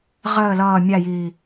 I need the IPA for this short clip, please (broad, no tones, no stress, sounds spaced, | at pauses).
ʁ əː l ʌː mʲ a j iː